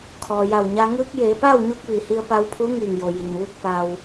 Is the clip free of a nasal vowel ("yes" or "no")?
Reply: yes